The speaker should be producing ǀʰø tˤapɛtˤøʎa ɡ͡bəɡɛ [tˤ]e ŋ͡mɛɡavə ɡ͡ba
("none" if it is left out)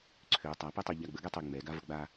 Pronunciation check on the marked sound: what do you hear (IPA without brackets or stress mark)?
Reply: tˤ